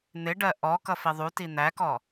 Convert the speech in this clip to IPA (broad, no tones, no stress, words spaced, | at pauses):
n̪ɪɖɜ ʔɔ kʌfiðˤu tin̪ækɔ